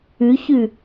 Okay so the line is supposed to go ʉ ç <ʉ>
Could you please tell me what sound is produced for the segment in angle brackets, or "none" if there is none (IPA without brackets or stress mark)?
ʉ